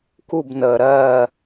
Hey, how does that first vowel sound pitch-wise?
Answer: falling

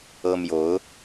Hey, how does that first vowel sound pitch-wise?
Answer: high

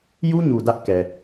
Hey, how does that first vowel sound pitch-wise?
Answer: high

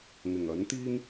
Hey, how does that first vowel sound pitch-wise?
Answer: low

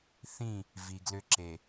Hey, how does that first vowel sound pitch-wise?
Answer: falling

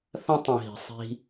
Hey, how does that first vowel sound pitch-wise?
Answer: high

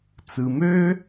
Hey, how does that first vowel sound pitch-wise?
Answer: low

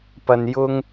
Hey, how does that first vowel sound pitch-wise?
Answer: low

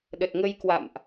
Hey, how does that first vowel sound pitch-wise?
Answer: low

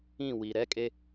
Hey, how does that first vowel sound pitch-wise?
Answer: falling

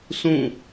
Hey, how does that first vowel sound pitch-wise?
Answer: falling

